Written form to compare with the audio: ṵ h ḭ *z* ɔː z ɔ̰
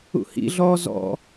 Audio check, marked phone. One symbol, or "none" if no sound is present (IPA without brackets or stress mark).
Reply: ɮ